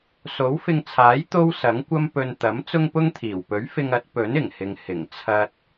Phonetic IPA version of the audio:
s o˨˥ w f ɪ˧ ŋ t͡sʰ aː˨˥ j t̪ o˥ w s ɐ˨˥ ŋ kʷ ɐ˥ m p ɵ˧ n t̪ ɐ˨˥ m t͡s ʊ˥ ŋ p ʊ˥ ŋ t̪ʰ iː˨˩ w p ɵ˨˥ ɥ f ɪ˧ ŋ ɐ˨˥ t̚ p ɵ˨˥ n ɪ˨˩ ŋ h ɪ˨ ŋ h ɪ˨˩ ŋ t͡sʰ ɐ˧ t̚

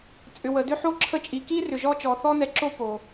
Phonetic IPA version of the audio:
t͡sʼ ʏ˨ w ə˨ d ʏ˧ ħ o˧ ǁʰ ə˧ t͡ʃʼ i˨ k i˦ r ʏ˨ ʒ ɔ˧ t͡ʃ ɔ˨ θ ɔ˧ n ɛ˨˦ ǁ o˧ p o˨

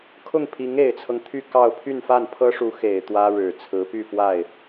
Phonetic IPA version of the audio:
kʰ ʊ˥˩ ŋ pʰ i˧˥ ŋ e˨˩ ɪ̯ t͡sʰ ɤ˦ ŋ t̪ʰ y˥˧ k ɑ˥˧ ʊ̯ pʰ y˥˧ n f a˥˩ n pʰ ɤ˥ ʂ u˧˥ x e˨˩ ɪ̯ t̪ w ä˥ ɻ ɻ̩˨˩ t͡sʰ ɹ̩˧˥ p y˥˧ f w a˥˩ ɪ̯

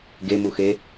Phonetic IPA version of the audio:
ɡ e m u x e

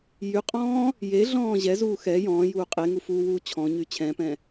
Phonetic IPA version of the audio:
j y qʼ ɔ̃ː | j e ɮ ɔ̃ː ʑ ɛ z uː x ɛ j ɔ̃ː j uː qʼ e ŋ u f uː w uː t͡ɕʰ ɔ̃ ɲ y t͡ɕʰ ɛ̃ p ɛ̃

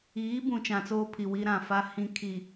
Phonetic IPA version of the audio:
iː˨˦ b ũ˨ t͡ʃ ã˨ t͡s oː˦ pʰ i˨ w i˦ ɾ ã˨ f a˦ h ĩ˦ kʰ i˨

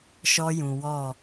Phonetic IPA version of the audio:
ʃ ɔ˦ j ũ˨ w ɔ˦˨

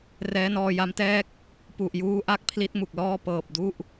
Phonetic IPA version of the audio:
r ɛː˦˥ n ɔː˧ j a˦˥ m t ɛː˥˩ k̚ | p u˨˩ ʔ j uː˦˥ ʔ a˥˩ k̚ pʰ l i˦˥ t̚ m u˨˩ k̚ l ɔː˥˩ p ɤː˨˩ p̚ d u˥˩ ʔ

